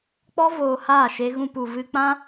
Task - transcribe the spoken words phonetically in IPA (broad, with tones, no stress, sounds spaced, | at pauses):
k͡p ɔ˦ v oː˧ h aː˦˨ ʃ e˧ ɣ ũ˧ p u˨ v ɨ˧ k͡p ã˦